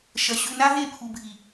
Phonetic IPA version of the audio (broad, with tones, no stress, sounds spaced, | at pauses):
ʃ ɐ˧ ɕ ʉ˧ n a˦ ɦ e˦˨ pʰ u˨ bʱ i˨